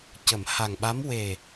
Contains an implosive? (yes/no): yes